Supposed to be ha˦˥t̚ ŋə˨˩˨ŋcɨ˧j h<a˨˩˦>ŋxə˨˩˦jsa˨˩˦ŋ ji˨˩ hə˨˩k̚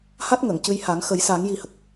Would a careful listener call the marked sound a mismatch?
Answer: no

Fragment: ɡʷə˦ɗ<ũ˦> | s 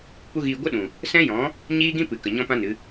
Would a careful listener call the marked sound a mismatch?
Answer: yes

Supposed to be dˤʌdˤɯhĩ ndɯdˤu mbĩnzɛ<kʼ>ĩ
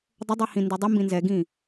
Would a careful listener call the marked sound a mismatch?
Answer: yes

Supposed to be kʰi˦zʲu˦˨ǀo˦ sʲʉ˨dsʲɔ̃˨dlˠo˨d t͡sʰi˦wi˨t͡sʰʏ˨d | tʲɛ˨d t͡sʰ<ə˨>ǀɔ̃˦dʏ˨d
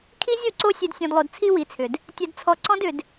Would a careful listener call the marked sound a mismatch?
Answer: yes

